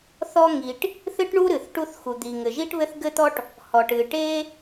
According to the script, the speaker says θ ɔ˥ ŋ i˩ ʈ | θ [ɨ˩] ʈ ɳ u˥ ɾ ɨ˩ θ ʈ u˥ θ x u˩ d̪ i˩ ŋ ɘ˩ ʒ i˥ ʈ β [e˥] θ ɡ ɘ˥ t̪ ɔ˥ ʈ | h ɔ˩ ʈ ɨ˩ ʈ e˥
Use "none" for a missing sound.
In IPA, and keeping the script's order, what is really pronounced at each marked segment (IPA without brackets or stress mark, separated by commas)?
ɨ˥, ɘ˥